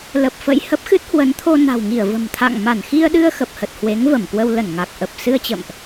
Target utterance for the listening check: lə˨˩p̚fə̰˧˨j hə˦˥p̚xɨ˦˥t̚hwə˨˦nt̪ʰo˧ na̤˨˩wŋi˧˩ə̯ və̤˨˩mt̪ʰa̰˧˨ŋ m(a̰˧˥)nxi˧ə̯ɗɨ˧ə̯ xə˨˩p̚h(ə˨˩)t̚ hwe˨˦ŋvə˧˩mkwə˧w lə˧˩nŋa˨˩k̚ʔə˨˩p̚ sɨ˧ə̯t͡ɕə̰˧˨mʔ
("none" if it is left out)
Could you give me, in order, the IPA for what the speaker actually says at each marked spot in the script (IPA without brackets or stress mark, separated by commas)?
a˧˩, ə˨˩